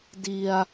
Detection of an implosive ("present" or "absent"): absent